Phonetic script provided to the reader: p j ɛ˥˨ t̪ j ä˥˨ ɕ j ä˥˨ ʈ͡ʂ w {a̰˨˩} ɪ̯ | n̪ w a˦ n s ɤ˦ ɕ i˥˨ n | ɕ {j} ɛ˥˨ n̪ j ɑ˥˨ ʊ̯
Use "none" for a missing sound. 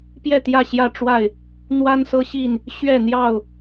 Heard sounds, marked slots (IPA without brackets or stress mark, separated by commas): a˥˨, ɥ